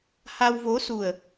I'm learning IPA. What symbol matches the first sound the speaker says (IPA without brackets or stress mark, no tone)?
h